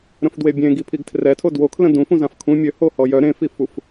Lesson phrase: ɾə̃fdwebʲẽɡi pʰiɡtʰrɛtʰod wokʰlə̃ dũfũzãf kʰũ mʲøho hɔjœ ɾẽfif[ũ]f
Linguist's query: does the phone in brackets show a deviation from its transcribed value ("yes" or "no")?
yes